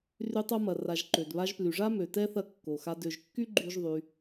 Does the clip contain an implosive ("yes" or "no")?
no